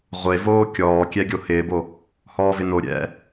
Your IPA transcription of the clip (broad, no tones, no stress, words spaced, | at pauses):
ʁʷevoː kʲɔːkʲɛ ɡʲohɪːbo | hɔːvɪno ɾʲɛ̰